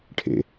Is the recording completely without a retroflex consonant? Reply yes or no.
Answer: no